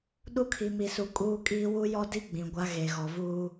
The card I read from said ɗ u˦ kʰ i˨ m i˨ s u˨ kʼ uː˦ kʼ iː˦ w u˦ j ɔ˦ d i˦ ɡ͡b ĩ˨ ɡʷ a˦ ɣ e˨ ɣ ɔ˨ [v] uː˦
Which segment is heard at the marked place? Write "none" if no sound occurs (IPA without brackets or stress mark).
v